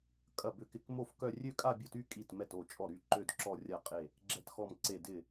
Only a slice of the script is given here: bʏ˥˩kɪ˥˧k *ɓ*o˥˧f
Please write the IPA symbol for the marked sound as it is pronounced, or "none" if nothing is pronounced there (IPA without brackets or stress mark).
m